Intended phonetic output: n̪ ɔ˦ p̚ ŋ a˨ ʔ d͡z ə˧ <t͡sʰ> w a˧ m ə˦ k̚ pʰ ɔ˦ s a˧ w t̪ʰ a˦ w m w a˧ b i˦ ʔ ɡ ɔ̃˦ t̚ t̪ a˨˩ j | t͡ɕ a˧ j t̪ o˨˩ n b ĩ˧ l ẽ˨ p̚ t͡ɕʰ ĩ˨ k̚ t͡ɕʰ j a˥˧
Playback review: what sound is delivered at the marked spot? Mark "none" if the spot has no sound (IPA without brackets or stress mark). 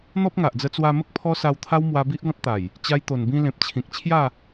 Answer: t͡s